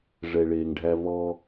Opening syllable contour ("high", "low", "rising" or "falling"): low